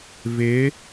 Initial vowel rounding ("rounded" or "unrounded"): unrounded